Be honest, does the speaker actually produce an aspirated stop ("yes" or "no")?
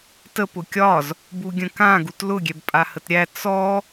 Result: no